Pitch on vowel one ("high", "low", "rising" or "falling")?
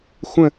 falling